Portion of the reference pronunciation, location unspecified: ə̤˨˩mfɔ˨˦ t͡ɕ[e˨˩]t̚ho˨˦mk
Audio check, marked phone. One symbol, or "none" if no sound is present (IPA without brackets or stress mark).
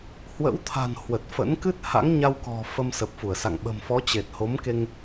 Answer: e˨˩